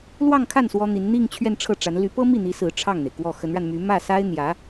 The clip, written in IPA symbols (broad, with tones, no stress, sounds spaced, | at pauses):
l w ɑ˥˧ ŋ kʰ a˥˩ n s w ɔ˥ n̪ i˧˥ n n̪ i˥˧ ŋ t͡ɕʰ ɥ ɛ˥˧ n ʈ͡ʂʰ ɤ˥˩ ʈ͡ʂ a˧˥ n l y˧˥ p ɤ˥ m i˥˩ n̪ i˧˥ s ɹ̩˧˥ ʈ͡ʂʰ ɑ˥˩ ŋ n̪ e˩ ɪ̯ k w ɔ˥˩ x ə˧˥ n ɻ a˧ n m y˧˥ m ä˥˩ s a˥ ɪ̯ n̪ j ä˧˥